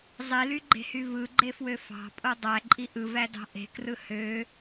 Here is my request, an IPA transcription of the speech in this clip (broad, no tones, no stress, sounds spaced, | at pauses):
zˤ i l y ɡ͡ǃ e̤ h y v ɯ ɡ͡ǃ e f w ø f ɑ̤ pʼ o dˤ æ ǃʼ i ʔ ɯ v æ d ɑ̤ ʔ e̤ k r ɯ h ø